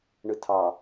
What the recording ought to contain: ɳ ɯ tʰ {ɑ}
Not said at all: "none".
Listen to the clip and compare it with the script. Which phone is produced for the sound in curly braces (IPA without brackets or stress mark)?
ɑ